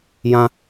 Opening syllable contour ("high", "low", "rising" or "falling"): low